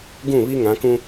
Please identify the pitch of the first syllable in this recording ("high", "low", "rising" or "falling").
falling